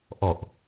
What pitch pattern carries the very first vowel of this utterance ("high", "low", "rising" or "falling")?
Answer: low